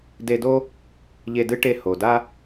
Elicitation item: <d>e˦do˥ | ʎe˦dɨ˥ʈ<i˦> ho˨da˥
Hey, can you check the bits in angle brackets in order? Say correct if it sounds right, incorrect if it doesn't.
correct, incorrect: e˦

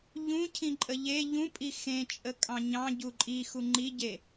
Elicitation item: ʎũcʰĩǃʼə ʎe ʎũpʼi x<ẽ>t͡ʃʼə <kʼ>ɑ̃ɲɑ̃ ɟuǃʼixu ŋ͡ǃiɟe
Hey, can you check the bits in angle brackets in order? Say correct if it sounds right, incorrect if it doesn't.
correct, correct

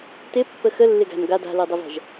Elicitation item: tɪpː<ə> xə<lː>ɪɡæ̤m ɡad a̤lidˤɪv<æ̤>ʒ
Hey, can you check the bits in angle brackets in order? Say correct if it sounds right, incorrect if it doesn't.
correct, correct, correct

